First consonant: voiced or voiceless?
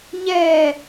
voiced